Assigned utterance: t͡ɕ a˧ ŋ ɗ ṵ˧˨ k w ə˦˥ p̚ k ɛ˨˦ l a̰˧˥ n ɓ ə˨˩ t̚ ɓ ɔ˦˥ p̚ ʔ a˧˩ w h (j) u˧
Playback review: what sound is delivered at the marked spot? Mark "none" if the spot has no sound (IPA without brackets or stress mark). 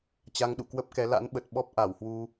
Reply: w